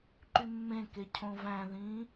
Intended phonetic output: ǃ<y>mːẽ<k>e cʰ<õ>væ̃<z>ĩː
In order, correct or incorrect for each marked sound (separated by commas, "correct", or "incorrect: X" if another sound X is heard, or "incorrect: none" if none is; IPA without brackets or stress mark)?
correct, correct, correct, incorrect: ð